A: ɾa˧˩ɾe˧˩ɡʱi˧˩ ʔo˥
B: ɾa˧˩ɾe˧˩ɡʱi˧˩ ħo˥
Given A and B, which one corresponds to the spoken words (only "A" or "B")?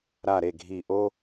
A